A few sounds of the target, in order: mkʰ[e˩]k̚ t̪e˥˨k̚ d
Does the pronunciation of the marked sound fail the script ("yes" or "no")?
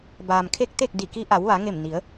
yes